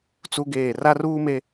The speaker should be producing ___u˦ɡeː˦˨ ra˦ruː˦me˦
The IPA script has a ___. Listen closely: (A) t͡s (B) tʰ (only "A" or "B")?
A